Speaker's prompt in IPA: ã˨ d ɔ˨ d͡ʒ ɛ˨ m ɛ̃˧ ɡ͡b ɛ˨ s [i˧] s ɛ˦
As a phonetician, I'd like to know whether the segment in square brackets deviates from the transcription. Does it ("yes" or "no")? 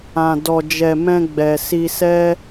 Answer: no